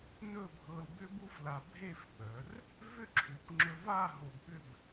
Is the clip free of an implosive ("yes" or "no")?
no